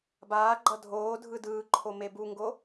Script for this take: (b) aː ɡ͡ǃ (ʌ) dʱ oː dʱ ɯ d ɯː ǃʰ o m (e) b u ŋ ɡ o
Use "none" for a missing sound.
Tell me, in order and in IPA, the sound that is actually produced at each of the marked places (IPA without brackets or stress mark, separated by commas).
b, ʌ, e